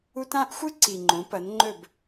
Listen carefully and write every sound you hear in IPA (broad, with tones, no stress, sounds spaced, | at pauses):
u˦ t ã˦ ʔ xʷ ɨ˦ ǀ i˨ ŋ͡ǃ õ˨˦ p ɐ˨˦ n ŋ͡ǃ ɵ˦˨ b